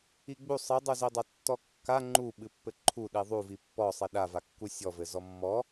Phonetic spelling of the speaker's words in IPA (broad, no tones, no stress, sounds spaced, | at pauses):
i ɡ͡b u sˤ ɨ dˤ u z i dˤ a tː ɔ kː a ŋ͡ǃ u ɓ ɨ pː ɘ ǃʰ u ɗ i ðˤ u v i pː ɔ sˤ i ɗ a v a kː u sʲ ɔ v ɘ z ɔ mː ɔ